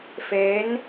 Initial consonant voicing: voiceless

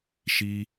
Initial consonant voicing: voiceless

